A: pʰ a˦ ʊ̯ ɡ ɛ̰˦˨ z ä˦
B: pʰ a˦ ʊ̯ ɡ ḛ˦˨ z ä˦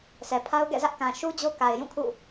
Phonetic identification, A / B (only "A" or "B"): A